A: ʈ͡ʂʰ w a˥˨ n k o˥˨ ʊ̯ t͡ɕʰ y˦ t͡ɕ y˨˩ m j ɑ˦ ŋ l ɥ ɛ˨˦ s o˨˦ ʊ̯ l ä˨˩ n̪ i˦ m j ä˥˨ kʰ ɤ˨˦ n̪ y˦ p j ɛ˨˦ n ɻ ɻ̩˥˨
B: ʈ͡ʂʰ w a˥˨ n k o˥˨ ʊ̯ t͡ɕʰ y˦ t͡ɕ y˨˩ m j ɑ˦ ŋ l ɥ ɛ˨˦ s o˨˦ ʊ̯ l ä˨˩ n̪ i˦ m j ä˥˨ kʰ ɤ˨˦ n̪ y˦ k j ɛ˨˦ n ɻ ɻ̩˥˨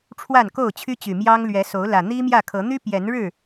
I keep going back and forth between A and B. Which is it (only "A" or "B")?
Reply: A